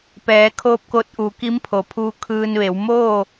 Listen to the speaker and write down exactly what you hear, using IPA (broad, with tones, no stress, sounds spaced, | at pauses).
p ɛː˩˧ kʰ oː˧ p̚ k o˧ t̚ ʔ uː˩˧ k i˧˥ m pʰ o˩ pʰ uː˧ kʰ ɯː˧ n ʋ e˩˧ w m oː˥˨